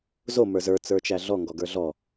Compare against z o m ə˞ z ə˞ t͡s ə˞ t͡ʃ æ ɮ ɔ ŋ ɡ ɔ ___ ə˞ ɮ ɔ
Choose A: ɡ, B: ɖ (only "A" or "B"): A